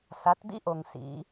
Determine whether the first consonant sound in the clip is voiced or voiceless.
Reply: voiceless